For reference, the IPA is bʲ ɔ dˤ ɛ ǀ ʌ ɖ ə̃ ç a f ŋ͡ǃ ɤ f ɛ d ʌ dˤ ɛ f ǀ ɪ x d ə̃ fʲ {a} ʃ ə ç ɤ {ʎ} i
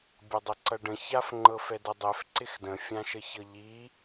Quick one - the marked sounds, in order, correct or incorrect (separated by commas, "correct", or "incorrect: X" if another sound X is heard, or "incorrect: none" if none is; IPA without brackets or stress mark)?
incorrect: ã, correct